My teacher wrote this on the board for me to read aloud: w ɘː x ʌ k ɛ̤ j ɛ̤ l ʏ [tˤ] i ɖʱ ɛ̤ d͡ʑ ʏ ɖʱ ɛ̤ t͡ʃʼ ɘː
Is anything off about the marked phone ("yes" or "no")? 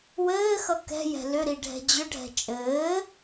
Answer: yes